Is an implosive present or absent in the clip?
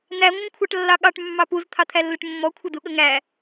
present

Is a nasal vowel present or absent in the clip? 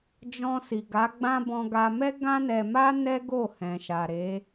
present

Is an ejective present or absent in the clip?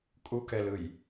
present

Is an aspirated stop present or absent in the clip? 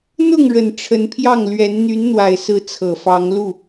present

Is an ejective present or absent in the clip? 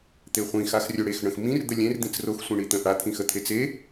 absent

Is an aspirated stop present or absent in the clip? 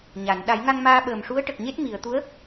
absent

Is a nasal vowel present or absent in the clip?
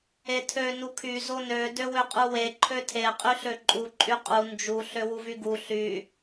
absent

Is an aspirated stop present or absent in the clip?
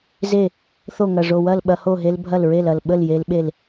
absent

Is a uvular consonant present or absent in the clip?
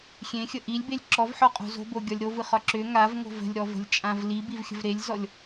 present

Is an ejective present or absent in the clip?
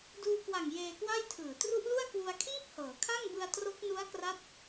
absent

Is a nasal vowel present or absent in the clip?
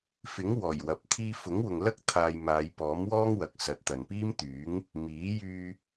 absent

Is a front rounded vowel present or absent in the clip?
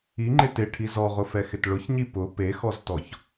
absent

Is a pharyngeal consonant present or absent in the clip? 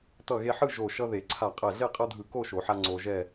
present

